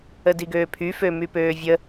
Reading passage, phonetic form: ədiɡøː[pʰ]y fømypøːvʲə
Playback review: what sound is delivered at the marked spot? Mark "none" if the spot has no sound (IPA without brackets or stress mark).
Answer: pʰ